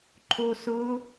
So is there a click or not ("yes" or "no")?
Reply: yes